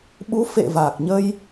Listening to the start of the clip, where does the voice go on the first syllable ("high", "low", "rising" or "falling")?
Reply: rising